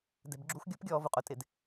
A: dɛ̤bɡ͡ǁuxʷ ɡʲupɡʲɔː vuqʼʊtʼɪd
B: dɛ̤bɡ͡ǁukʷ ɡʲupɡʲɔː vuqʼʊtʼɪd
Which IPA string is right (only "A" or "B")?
A